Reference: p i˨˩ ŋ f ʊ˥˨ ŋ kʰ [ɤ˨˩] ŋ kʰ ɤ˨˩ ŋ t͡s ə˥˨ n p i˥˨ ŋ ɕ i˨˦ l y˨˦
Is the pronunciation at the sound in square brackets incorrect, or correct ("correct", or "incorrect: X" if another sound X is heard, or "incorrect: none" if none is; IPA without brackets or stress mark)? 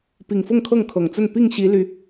incorrect: ɤ˥˨